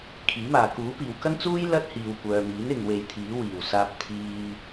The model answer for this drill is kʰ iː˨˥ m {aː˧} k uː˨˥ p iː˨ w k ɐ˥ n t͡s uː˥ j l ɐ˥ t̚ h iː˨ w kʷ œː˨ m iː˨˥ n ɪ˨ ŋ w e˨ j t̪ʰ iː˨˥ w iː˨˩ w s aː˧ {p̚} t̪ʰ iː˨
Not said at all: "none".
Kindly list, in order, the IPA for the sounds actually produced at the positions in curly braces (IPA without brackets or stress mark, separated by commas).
aː˨, p̚